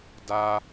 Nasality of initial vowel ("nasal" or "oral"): oral